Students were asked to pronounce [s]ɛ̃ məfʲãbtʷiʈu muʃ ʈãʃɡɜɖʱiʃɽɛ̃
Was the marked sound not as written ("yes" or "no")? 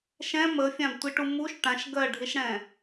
yes